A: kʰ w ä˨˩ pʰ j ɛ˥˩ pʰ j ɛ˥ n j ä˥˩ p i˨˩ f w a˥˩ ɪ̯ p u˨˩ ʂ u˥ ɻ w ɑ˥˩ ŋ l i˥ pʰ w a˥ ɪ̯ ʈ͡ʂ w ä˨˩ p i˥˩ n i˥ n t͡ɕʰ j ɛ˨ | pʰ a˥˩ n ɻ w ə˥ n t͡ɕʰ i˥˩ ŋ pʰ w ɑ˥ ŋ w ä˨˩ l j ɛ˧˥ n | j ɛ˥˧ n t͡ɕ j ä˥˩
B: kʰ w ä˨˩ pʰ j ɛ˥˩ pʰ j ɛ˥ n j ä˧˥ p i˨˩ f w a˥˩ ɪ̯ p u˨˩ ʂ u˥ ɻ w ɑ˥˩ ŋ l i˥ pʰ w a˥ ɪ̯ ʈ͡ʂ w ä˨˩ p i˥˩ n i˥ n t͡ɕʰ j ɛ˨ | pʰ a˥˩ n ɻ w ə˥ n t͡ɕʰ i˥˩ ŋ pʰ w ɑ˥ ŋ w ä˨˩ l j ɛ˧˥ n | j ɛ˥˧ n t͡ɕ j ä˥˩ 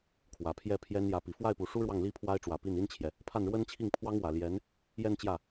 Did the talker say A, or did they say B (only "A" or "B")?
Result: B